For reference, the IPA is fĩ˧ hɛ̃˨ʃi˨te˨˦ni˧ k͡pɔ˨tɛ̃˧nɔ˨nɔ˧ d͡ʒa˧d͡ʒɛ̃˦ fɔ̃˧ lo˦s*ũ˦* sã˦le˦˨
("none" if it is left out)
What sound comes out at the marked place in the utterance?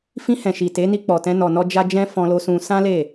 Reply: ũ˧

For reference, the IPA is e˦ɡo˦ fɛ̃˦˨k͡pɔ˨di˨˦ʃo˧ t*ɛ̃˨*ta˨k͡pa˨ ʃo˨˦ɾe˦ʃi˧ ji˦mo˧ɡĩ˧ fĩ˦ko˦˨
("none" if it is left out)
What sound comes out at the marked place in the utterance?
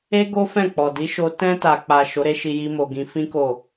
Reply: ɛ̃˧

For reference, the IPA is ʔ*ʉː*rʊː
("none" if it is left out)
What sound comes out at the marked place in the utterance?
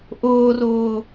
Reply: ʊː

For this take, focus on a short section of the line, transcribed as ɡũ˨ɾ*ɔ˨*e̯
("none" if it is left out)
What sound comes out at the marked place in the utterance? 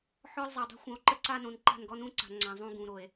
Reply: o˨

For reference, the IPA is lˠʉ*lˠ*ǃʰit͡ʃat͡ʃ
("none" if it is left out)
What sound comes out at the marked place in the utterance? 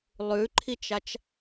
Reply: none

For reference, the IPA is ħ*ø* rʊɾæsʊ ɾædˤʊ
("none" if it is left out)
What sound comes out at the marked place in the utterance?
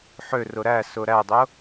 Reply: ø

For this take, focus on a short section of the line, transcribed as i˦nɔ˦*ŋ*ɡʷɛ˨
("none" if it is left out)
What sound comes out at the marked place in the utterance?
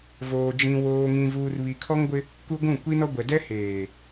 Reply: none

